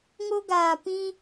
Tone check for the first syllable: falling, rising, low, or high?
high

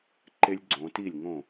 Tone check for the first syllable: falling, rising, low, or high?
high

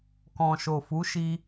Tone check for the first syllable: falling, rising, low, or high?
low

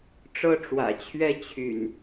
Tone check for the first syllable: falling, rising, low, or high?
high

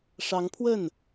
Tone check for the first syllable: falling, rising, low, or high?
rising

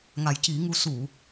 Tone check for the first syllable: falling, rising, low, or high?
low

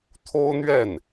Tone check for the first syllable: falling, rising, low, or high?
high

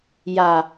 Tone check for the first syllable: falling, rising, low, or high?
low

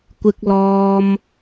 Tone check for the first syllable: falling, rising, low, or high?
high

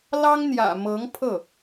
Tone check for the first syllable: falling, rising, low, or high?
high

